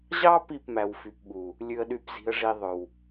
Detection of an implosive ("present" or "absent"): present